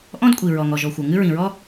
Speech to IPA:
ʔɔ̃˥dkʷʼi˩ ɹɔ˩ŋɔ˩ʒɔ˩xʷɤ˩ ŋɨ˥ɹĩ˩ɹɔ˥

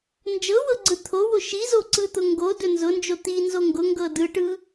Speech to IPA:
nd͡ʒɤwɤɡ͡ǀɯ t̪ʰowo ʃizoǀɯt̪ʊ ŋɡodɵ nzʊnd͡ʒo t̪inzo ŋɡʊŋɡɤ dɯʈɯ

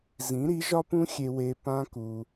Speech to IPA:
zĩ˨˦ɾi˨˦ʒɒ˦pũ˦ xʲe˧ we˧ pã˦ku˧

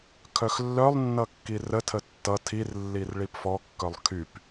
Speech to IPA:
kʰœxlːœlˠnːʌ kːirətʰə tːʌ tʰirlːir ɭipfɔkːœlˠ kʰyp

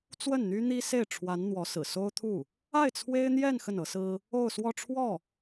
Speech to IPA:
t͡swə˥˩nn̪y˥n̪i˥se˥˩ɪ̯ ʈ͡ʂʰwa˧˥n n̪wɔ˧˥sɹ̩˨˩ so˥ʊ̯t̪ʰu˥˩ | a˥˩ɪ̯t͡sʰwe˥ɪ̯ n̪jɛ˥˧n xə˥˩nɤ˧˥sɹ̩˥ | o˥˧ʊ̯ swɔ˥˧ʈ͡ʂʰwɔ˥˩

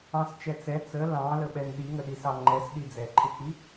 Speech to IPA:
ɑ̃st͡ʃɛ t͡sɛ t͡sə lɑ̃ləɓɛn ɗiŋəɗisɑ ŋ͡ǃɛsɗi d͡zɛǃʰɪk͡pi

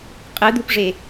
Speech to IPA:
qʼɯd̪upʐe

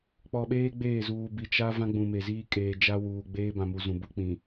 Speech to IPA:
k͡pɔ˨ɓeː˦ ɡ͡beː˦˨zuː˨bi˨ t͡ʃa˦ vã˦ɡ͡bũ˨ me˨ziː˦ kʼeː˨d͡ʒa˦wuː˨ ɡ͡beː˦ bã˨mu˨ zũ˨bu˦k͡pĩ˨

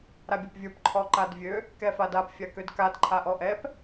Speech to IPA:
ɾabʲapvʲə˞p ǃʰɔǃadvʲø | kɛfadap fʲakødkad ǃʰaʔɔʔɛp

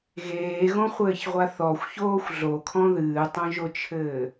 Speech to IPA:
ɣeːɣõχʷɘːçʁʷa θɔxʷçoːxʷ ɮokʰɔ̃ ðɨːtˤõʒot͡ʃʰɘː

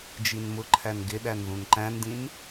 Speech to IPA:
d͡ʒinmʊǃʰæn ɡɪɗæn ðũnǃæ̃ndĩn

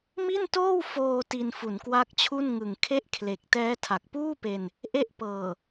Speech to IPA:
mi˥˩ntoː˥˩w foː˧ ti˧nfu˩˦nkwa˦˥k̚t͡ɕʰu˥˩n ŋɯ˨˩ŋkʰe˥˩ʔkʰle˨˩k̚ tɛː˦˥tʰa˨˩k̚puː˥˩pe˧n | ʔe˦˥ʔpɤː˨˩

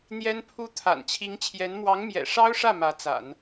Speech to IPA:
n̪jɛ˥npʰu˥ t̪ʰa̰˨˩nt͡ɕʰi˧˥ŋt͡ɕʰjɛ˧˥n mwɑ˧˥ŋmjɛ̰˨˩ʂɑ˥ʊ̯ʂä˥˩ mä˧˥t͡sa̰˨˩˦n

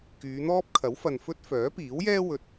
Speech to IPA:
kyː˨˧n̪ɔː˥p̚ kʰɐ˨˥wfɐ˨n fɵ˥t̚ fœː˨˥piː˨˥wjɛː˥ wɵ˨t̚

